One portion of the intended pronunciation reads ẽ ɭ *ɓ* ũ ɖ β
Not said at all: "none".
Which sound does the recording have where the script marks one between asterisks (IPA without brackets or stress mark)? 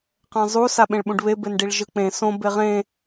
ɓ